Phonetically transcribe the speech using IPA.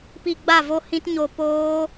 p i˧ ɡ͡b a˦˨ v o˦ h ĩ˦ t ɲ o˧ p oː˦

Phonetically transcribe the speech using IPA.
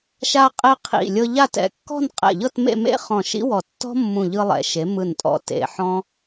ʃ a˧ qʼ e˧ qʰ ḭ˧˩ lʲ ɤ˧ ʎ a˥˧ t ɛ̰˩˧ kː ɔ̤˥˧ n qʼ ɛ̰˧˩ ʎ ɤ˥˧ t m ḛ˥˧ m ḛ˥ χ ɔ̃˧˩ ʃ ḭ˥ w ɔ˧˩ tː ɔ̤˥ mː ũ˧˩ ʎ ɯ˧ lˠ ɛ̰˩˧ ʃ e˩˧ m ɯ˧˩ n tʼ ɔ̰˧˩ t ḛ˧˩ ħ ɔ̃˥

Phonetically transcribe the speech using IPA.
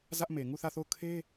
z ä˦ ʔ m e˨ ŋ u˦˨ θ ä˦˨ θ o˦˨ ʊ̯ kʰ e˦

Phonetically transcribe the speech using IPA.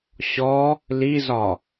ɕ ɔ | l i z ɒ

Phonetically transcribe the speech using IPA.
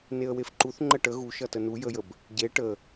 n e ə̯ w e f ǃ u θ ŋ͡ǃ ə ʈ ə ɣ u ʃ ʌ t ə n u j ə j ə b | ɟ e ʈ ə

